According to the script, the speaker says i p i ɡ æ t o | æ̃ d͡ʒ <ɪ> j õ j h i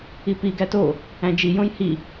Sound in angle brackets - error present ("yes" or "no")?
yes